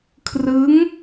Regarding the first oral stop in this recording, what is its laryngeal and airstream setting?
aspirated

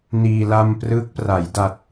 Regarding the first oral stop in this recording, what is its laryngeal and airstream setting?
plain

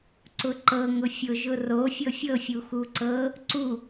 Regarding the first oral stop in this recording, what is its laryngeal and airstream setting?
click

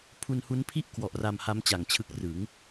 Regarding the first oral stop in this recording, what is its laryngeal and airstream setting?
aspirated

